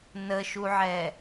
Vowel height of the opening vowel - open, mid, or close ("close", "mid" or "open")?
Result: mid